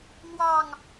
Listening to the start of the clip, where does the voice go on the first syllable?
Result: falling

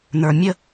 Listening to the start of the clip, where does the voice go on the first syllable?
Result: low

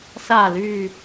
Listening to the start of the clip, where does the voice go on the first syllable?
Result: low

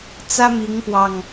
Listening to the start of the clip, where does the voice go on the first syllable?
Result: high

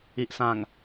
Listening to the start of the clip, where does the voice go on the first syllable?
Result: low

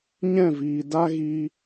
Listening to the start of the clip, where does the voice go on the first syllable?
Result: falling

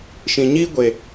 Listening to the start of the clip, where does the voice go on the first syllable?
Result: low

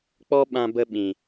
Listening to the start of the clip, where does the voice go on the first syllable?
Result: high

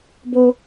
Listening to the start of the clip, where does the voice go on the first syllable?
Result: high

